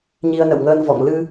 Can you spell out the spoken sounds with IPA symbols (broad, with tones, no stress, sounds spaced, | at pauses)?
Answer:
ɲ i˧ ə̯ n ə̰˧˨ w ŋ əː˧ n v ɔ̰˧˨ ŋ l ɨ˧